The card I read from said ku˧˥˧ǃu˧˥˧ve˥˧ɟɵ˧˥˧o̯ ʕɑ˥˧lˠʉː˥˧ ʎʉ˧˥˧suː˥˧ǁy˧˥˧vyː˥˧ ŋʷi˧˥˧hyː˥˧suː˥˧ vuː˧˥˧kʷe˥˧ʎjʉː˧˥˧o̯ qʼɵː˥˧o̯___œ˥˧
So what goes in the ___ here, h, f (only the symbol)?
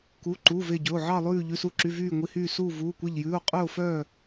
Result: f